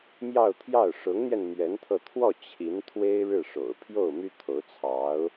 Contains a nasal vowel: no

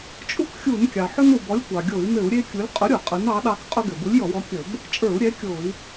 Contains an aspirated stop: no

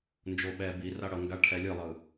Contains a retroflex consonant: yes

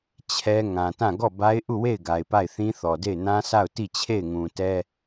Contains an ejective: no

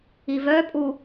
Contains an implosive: no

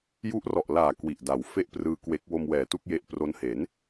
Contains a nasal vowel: no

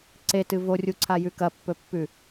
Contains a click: yes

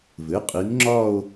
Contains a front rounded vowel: no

